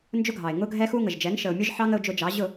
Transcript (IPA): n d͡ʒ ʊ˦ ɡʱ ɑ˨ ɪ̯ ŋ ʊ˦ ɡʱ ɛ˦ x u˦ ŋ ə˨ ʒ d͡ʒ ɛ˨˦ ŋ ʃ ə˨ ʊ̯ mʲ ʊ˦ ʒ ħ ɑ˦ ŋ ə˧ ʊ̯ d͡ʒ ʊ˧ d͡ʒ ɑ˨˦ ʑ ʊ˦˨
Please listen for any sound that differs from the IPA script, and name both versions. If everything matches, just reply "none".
none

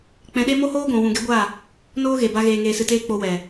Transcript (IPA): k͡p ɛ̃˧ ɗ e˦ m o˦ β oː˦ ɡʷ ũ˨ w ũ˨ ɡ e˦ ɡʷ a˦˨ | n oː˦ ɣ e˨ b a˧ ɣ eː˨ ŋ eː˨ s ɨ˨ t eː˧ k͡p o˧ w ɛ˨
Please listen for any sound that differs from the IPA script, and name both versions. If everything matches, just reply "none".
β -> h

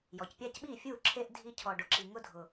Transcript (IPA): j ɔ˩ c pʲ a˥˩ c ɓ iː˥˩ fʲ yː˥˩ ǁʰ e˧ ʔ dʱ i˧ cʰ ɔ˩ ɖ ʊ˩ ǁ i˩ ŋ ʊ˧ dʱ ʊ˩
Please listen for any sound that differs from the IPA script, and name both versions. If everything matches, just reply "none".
yː˥˩ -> uː˥˩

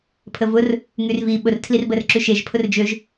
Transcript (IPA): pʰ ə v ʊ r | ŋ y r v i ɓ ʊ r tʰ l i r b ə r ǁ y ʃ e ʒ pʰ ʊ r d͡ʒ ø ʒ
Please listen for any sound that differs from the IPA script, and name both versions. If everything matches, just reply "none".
none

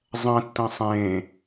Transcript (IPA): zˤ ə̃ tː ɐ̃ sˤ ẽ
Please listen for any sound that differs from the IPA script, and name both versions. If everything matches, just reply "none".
ə̃ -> ɐ̃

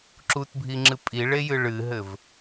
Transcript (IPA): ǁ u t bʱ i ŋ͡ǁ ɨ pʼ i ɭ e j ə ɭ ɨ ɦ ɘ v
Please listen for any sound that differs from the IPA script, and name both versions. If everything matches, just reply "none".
ə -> ɨ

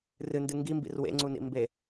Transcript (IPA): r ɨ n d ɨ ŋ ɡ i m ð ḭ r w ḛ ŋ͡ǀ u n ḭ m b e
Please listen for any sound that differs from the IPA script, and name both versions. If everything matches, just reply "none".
ð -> b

